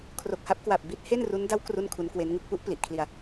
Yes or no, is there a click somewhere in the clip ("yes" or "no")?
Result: no